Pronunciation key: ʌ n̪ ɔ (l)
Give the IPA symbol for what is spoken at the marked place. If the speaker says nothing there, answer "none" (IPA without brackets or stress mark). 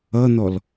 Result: l